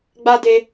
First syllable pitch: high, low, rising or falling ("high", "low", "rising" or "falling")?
high